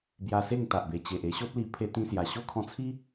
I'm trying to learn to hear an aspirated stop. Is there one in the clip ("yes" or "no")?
yes